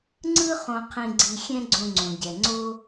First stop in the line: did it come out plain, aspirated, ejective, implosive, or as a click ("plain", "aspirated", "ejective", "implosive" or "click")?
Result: click